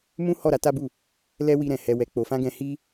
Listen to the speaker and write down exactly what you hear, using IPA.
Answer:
mũ˦ hɔ˦˨ɾa˧ta˦bu˦˨ | lɛ˦wi˧ɾɛ̃˨ hɛ˨wɛ˨k͡po˨fã˧ ɡɛ̃˧hi˦

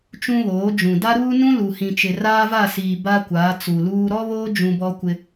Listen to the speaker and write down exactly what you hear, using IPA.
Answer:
t͡ʃũ˦βoː˨˦d͡ʒũ˨ da˦ɾuː˦nũ˦ lu˨hĩ˨t͡ʃɪ˨ raː˦va˦˨siː˨ ba˦kʷaː˨˦t͡su˨luː˦ ɾɔ˦βoː˦ d͡ʒũ˦bɔ˦kʷɪ˦

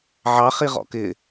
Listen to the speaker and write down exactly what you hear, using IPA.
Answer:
ʕɑχ iʁɔ̰kɪ

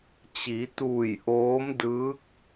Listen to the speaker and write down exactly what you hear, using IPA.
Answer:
t͡ɕi˩˧t̪uː˧˩j ʔoː˧˥mdɯː˧˥k̚

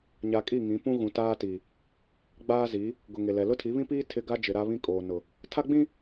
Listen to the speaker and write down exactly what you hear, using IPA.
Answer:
ɲa˨ kʼi˦˨ŋĩ˨˦pũ˦ ɣũ˨taː˦ti˨ | ɡ͡baː˦zi˨˦ | ɡʊ˨ŋe˨lɛ˨ lʊ˦tʰi˨˦βĩ˦piː˦ tʰɪ˦ ɡa˦d͡ʒɪ˨ ɾa˦βĩ˦ kʼoː˨nʊ˨ | tʰa˦ɡ͡bĩ˦

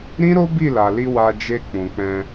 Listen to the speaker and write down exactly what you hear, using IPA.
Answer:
ɾĩ˦ɾo˦ bi˦˨la˨li˧ wa˧d͡ʒe˧ k͡pũ˨k͡pɛ̃˧

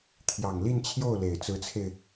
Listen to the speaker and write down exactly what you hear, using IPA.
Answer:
t̪ʰjɑ˨˩ŋli˥˧nt͡ɕʰjo˥˩ʊ̯le˨˩ɪ̯ t͡sɹ̩˧˥t͡sʰe˧ɪ̯

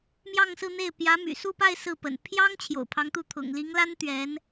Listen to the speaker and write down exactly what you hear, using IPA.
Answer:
mjɑ˥˧ŋsɹ̩˥˧n̪e˥˩ɪ̯ pjä˧˥my̰˨˩ su˥˧pa˥˧ɪ̯ sɹ̩˥˩pə̰˨˩n pʰjɑ˥ŋ t͡ɕʰjo̰˨˩ʊ̯pʰɑ˧˥ŋt̪u˥˩ t̪ʰʊ̰˨˩ŋli˧˥ŋla˥n t̪ɥɛ˧˥n

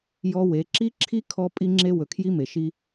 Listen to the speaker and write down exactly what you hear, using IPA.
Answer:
jɔ˦ we˨˦ǁi˦ǁʰi˦ kʰɔ˦ pʼi˦ŋ͡ǁe˦ wɵ˨kʰji˦me˨ʃi˦

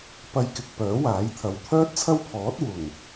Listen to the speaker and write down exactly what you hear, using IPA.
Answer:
pɐ˧jkɪ˨k̚ pœː˨˥waː˨˥jt̪ʰɐ˨w t̪ʰœː˥t̚t͡sʰɐ˥wpʰɔː˨˥t̚ wʊ˨˩ŋ

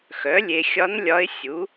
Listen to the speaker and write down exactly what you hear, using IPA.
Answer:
xœ˩˥lʲe˨ xʲɒ˧˥n lʲɒ˧˥ɪ̯sʲu˩˥

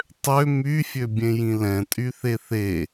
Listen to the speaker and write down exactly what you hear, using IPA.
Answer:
tˤø myfʲøbʲẽjĩ lɛ̃tʼyθe θe

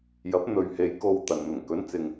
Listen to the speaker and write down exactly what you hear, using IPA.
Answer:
jɐ˨˥p̚ n̪ɵ˨ɥhe˨j ko˧wt̪ɐ˨n n̪ʊ˨˩ŋkɵ˨˥nt͡sɪ˨ŋ

